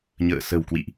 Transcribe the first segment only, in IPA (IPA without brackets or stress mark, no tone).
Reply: ɲ